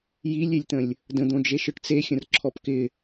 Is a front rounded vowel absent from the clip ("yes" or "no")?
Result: yes